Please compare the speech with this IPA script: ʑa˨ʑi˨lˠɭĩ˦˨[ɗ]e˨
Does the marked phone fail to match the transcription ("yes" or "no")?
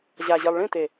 yes